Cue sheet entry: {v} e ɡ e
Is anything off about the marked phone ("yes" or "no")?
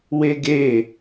yes